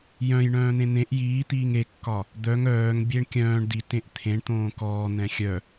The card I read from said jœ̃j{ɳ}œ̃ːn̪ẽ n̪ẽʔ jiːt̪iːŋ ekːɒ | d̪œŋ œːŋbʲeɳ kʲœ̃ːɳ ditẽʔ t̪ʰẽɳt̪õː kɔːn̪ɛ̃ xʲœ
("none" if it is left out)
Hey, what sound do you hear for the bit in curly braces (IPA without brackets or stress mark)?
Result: ɳ